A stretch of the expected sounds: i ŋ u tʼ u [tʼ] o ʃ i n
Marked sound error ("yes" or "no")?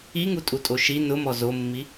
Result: no